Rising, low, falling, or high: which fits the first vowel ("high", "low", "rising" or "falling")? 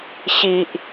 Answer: low